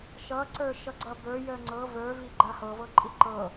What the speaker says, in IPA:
ʃ ʌ ǀ ə˞ ʃ ʌ ɡ͡ǀ ʌ b ə˞ j œ ŋ͡ǀ ɤ v ə˞ v i ɡ͡ǃ a h ɤ v ɤ ǃʼ i ǃ ɤ

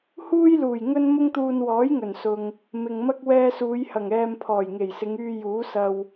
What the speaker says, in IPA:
h uː˥ j l uː˨˩ j ŋ ɵ˥ n m ʊ˥ ŋ t̪ uː˧ n w ɔː˨˥ j ŋ ɵ˨˩ n s ʊ˨ ŋ | m ɪ˨ ŋ m ɐ˥ k̚ w ɛː˧ s uː˨˧ j h ɐ˨˩ ŋ ɛː˧ m pʰ ɔː˨˩ j ŋ e˨˩ j s ɪ˨˧ ŋ yː˧ j uː˨˥ s ɐ˧ w

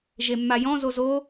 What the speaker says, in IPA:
ʒ e mː a j ɔ̃ z o z o

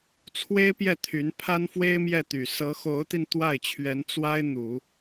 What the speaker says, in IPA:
t͡sʰ w e˥ ɪ̯ p j ɛ˥˩ t̪ʰ y˧˥ n pʰ a˥ n f w e˥ ɪ̯ m j ɛ˥˩ t̪ y˨˩ s ɤ˧˥ x o˧˥ ʊ̯ t̪ i˧ n t̪ w a˥˩ ɪ̯ t͡ɕʰ ɥ ɛ˧˥ n t͡s w a˥ ɪ̯ n̪ u˨˩˦

